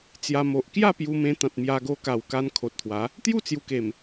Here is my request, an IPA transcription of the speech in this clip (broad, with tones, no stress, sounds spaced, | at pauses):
t͡s j a˧ m o˨ ʔ k j a˥˧ p j u˧ m ẽ˧ t̪ ã˨ t̚ m j a˧ ɡ o˧ k a˨˩ w k a˧ n kʰ o˨ t̚ t̪ʰ w a˨˦ | t̪ j u˥˧ t͡s j u˨˩ k e˨˩ m